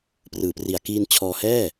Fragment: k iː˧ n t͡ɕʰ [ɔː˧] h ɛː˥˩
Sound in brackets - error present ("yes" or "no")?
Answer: no